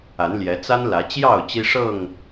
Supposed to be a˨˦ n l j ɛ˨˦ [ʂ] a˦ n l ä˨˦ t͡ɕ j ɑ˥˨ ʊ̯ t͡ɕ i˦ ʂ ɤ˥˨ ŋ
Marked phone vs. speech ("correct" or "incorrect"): incorrect